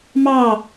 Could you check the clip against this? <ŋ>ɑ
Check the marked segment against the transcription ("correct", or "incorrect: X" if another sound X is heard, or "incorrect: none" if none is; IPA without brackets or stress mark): incorrect: m